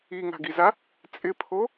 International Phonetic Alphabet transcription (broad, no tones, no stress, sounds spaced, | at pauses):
i ŋ a̤ ɡ i z a | t͡sʼ ɪ pʰ o